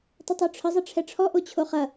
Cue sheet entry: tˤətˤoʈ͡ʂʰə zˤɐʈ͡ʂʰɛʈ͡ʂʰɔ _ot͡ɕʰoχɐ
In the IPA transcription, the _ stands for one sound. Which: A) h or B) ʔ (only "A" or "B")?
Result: B